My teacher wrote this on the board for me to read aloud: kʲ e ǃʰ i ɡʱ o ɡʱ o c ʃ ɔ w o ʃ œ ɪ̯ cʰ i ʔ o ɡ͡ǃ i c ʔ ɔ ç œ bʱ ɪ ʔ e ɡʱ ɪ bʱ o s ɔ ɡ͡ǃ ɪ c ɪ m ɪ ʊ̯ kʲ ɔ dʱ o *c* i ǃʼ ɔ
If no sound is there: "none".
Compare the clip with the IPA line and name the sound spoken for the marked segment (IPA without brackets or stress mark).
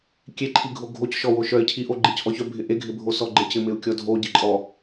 ɟ